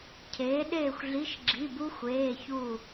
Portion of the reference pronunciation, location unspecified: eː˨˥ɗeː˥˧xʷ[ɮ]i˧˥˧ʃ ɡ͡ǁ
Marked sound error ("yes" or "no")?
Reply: no